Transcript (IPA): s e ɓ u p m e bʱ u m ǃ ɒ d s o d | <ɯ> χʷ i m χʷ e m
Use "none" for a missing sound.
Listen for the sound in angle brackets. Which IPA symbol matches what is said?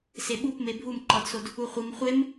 u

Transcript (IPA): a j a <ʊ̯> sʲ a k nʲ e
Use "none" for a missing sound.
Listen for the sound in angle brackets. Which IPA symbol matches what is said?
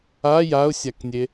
ʊ̯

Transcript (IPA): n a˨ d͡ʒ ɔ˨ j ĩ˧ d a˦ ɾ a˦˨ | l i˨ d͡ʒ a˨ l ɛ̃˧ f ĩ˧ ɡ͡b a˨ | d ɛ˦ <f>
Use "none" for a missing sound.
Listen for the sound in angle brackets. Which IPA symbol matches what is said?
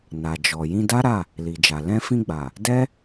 none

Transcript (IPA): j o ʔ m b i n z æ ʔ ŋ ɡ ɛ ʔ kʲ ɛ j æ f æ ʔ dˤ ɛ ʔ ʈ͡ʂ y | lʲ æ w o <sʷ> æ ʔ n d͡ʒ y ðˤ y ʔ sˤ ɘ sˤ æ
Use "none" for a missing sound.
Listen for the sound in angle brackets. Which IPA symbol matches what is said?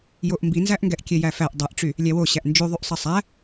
ɕ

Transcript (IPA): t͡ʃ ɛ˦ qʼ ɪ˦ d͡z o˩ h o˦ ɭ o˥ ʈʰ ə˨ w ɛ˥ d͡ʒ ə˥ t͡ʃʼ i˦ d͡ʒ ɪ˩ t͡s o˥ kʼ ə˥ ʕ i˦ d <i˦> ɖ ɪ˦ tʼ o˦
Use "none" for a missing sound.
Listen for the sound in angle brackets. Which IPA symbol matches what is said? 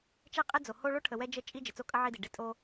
i˩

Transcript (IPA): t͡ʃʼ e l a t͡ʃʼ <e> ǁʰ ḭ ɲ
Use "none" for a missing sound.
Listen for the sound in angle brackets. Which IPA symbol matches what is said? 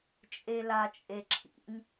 e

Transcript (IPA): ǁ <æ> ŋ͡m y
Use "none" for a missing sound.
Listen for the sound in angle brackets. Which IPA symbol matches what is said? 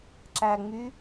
æ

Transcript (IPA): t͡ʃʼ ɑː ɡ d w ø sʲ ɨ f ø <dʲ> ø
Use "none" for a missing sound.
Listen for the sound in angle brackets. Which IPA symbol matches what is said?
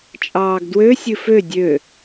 dʲ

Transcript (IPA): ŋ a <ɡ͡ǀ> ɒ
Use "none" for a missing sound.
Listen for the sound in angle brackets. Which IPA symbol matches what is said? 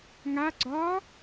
ɡ͡ǀ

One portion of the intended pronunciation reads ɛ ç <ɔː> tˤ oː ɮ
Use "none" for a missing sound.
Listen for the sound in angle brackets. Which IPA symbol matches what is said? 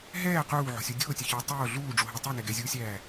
ʊː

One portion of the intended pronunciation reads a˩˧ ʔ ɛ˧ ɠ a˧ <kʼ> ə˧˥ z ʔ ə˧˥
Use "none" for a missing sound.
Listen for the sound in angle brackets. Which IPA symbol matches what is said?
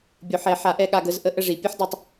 ɡ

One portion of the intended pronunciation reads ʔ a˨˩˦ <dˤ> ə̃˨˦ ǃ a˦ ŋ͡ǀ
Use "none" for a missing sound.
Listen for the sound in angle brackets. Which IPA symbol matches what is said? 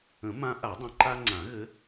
dˤ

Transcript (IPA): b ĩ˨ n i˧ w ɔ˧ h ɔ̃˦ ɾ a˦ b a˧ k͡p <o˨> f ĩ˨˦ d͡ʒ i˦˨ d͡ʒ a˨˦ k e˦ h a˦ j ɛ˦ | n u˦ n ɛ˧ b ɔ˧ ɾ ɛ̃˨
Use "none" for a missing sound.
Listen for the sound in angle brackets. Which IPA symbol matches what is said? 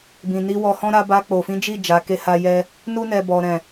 o˨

